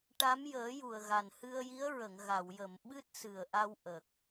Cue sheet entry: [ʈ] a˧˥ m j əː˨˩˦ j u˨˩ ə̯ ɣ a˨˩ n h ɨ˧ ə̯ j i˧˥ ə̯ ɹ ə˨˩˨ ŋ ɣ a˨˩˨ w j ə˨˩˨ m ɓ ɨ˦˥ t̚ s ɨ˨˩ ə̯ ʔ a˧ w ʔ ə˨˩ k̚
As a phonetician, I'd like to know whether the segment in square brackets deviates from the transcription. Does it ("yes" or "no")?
no